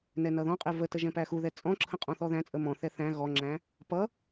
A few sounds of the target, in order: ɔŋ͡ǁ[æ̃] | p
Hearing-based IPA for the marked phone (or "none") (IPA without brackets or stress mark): æ̃